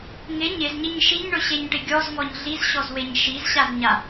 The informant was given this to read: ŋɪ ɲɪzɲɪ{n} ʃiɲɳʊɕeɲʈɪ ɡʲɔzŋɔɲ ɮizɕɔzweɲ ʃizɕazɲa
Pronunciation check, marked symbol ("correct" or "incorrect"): incorrect